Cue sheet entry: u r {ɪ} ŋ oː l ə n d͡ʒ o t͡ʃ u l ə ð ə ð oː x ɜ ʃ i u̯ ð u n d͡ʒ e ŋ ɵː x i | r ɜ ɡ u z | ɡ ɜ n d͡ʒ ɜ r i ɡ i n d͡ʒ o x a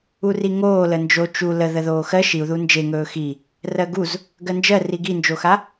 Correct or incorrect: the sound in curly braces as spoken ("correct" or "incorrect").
incorrect